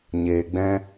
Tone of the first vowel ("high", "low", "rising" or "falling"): low